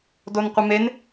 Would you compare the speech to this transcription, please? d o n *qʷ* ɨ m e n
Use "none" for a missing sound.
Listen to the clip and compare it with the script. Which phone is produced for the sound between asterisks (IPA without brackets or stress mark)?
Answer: qʷ